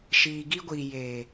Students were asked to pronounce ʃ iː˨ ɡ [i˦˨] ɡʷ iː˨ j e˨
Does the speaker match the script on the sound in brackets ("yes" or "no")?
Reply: no